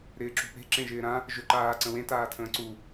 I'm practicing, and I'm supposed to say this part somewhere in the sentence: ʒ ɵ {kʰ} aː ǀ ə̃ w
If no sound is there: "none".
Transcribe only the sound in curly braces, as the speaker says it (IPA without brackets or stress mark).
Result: ǃ